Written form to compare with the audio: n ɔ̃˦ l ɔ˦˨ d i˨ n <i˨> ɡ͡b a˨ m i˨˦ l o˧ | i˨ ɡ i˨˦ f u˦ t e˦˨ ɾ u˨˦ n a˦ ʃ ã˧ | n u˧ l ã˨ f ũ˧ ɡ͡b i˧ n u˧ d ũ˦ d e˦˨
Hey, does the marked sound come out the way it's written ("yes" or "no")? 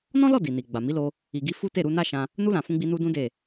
yes